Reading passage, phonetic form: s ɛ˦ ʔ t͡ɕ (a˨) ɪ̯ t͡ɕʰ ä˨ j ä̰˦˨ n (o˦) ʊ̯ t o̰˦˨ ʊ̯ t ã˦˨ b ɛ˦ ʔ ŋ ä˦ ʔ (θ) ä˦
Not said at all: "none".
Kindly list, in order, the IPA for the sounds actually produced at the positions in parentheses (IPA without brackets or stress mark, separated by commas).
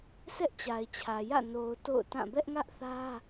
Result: a˨, o˨, θ